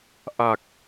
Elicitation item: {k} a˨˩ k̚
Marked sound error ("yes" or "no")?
yes